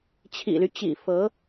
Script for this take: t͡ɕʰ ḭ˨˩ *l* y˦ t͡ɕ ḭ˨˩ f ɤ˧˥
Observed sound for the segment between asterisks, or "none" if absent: l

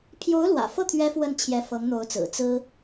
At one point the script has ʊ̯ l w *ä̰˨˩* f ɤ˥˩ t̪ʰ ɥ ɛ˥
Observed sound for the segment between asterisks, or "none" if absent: ä̰˨˩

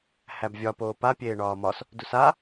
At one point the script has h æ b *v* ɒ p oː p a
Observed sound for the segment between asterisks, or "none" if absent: vʲ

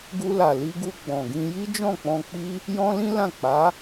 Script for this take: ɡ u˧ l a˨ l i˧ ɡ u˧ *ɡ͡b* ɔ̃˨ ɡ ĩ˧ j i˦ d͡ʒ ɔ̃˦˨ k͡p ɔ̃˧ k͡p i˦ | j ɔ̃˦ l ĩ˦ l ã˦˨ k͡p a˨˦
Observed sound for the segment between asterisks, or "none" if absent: ɡ͡b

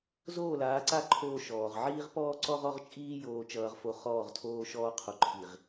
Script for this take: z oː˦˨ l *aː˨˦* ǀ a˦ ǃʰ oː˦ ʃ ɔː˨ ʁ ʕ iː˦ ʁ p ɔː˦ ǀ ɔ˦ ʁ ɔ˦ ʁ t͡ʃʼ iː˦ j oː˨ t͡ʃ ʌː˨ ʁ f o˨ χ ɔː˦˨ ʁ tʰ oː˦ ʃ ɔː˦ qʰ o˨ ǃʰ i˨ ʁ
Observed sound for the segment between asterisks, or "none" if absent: aː˨˦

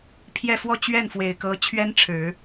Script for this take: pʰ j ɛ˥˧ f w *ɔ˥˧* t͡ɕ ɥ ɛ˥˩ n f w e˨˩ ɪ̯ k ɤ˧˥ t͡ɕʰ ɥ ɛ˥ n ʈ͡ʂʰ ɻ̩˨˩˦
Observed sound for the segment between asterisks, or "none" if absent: ɔ˥˧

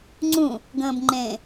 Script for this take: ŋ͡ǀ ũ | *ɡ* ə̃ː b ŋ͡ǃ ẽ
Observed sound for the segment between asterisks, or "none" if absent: ɡ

